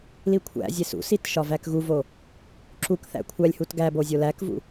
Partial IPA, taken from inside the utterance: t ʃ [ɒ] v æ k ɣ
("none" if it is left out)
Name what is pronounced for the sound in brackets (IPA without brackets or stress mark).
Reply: ɒ